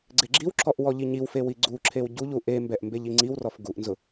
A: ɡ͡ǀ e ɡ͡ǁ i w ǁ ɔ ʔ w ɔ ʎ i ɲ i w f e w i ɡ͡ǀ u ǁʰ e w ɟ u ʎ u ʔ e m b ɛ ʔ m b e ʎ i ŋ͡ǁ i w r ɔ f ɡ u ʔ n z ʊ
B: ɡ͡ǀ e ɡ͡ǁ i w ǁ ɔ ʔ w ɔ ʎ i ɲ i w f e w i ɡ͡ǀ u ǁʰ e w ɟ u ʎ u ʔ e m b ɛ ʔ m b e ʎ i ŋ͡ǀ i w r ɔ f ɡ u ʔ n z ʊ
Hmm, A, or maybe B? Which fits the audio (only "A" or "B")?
B